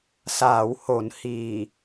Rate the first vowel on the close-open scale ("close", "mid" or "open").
open